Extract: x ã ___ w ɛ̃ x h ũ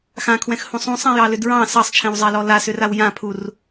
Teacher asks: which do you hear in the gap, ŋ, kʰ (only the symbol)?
kʰ